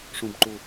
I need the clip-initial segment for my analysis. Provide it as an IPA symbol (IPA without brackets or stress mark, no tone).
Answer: ʂ